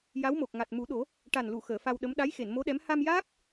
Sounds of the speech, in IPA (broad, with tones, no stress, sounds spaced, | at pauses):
j a˧˥ w m o˨˩ k̚ ŋ a˨˩ t̚ m u˨˩˦ ɗ o˨˩˦ | ʈ a˨˩ n l u˨˩˨ x əː˨˩˨ f a˧ w ɗ ə˧˥ m ɗ a˧˥ j x e˨˩˨ n m o˧˥ ɗ ɛ˧˥ m h a˧ m j aː˦˥ k̚